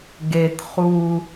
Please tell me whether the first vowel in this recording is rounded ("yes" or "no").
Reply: no